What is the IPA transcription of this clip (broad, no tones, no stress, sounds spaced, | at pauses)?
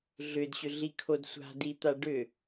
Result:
ɮ ʏ d ɕ ʏ ɮ i kʰ o d sʷ a̤ d i t̪ a ɖ ʏ